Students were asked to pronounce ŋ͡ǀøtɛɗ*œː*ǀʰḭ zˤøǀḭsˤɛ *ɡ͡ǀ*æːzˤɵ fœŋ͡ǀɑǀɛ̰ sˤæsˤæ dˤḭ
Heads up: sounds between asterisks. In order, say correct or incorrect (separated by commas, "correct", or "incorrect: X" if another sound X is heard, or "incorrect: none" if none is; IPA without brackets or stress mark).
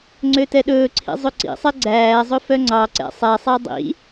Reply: incorrect: ɵː, correct